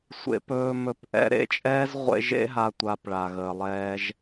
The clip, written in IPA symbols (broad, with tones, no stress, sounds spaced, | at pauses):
sʷ ḛ˧ p ɵː˧ m ɵ˧ p ʔ ɛ̰˦ ɾ ḛ˦˨ t͡ʃʼ ɛː˦ z ʁʷ ḛ˧ ʒ ḛ˦ ɦ a˦ tʷ a˧ p ɭ a˨ ɣ əː˨ lˠ ɛː˧ ʒ